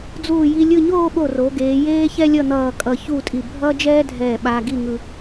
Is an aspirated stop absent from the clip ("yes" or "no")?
yes